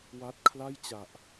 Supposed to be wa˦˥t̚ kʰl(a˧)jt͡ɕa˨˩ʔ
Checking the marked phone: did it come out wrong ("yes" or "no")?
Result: yes